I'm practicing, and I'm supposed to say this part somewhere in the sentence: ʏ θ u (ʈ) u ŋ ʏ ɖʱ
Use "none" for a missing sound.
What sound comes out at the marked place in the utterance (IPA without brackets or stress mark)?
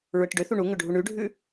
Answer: ɳ